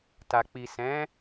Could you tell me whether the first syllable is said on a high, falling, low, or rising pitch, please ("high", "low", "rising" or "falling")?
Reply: low